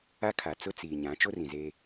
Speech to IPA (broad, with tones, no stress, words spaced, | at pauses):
a˦kʰa˨t͡sʊ˦ t͡siː˨ɲã˨˦ t͡ʃo˦rĩ˨zeː˦